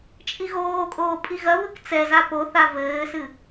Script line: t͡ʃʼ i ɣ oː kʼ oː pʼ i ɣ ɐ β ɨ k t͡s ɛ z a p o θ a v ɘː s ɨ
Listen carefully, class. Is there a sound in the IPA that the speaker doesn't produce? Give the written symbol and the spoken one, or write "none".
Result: none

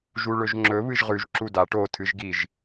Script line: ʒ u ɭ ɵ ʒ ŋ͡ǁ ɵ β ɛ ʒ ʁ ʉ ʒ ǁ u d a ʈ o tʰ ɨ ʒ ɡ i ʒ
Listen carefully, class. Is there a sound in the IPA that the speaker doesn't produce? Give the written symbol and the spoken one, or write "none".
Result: ɛ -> ɨ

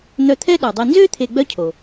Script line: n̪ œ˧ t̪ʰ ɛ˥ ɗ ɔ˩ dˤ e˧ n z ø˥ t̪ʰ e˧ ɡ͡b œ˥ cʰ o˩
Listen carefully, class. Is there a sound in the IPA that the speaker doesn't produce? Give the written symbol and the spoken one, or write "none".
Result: none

